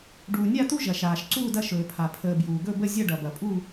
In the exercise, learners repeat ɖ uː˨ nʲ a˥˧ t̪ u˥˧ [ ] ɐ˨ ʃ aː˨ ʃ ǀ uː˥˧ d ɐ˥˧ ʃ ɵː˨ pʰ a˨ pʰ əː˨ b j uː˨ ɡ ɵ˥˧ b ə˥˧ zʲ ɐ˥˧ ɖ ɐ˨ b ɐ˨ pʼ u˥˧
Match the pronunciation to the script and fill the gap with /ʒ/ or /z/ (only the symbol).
ʒ